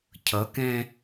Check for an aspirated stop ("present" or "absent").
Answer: present